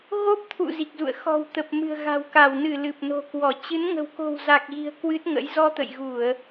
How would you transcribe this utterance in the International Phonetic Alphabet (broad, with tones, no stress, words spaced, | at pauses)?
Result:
ɣo˦˥p̚ t̪ʰṵ˧˨ zi˨˩k̚zṵ˧˨ə̯ xɔ̤˨˩wt̪ə˨˩p̚ mɨ̤˨˩ə̯ɣa̤˨˩wka˧˩wnɨ˧˩ lɨ˨˩p̚no̤˨˩kwɔ˧˩ t͡ɕɨ˨˦n ŋə̤˨˩wko̤˨˩w za˨˩k̚ɣi̤˨˩ə̯ kwɨ˦˥t̚ŋə̰˧˥j zɔ˧t̪ə̰˧˨jɣu˧˩˨ə̯